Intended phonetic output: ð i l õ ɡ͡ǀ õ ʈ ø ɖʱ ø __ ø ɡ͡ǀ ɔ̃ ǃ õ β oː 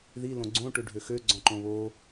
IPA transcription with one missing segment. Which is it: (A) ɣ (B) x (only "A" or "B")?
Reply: B